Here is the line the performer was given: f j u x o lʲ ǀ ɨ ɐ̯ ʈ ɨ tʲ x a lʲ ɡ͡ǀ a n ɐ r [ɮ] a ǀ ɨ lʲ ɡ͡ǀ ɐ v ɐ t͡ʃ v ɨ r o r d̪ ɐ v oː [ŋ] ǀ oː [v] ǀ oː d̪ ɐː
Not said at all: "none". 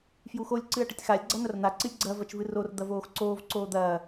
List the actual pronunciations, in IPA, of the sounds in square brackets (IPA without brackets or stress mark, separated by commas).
n̪, x, v